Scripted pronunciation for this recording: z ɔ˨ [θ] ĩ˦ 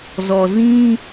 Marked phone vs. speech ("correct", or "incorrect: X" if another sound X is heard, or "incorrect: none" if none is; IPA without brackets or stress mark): incorrect: z